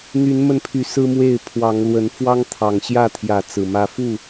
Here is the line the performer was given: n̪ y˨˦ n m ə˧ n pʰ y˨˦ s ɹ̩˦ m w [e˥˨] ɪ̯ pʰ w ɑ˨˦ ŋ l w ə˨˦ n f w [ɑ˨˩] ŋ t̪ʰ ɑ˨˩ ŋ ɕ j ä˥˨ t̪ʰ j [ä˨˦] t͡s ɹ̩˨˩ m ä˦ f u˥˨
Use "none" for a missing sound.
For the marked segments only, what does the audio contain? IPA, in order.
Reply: e˥˨, ɑ˦, ä˨˦

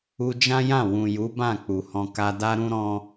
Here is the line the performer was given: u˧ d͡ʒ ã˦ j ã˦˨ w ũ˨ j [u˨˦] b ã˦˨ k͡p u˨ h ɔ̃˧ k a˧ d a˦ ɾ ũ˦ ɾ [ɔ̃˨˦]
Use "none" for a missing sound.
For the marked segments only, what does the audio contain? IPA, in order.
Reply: u˨˦, ɔ̃˦

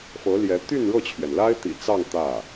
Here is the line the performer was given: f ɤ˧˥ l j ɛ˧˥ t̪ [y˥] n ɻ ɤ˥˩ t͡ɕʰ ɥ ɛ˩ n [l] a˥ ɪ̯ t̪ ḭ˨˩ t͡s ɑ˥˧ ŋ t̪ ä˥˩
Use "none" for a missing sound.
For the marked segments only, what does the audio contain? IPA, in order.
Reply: y˥˧, l

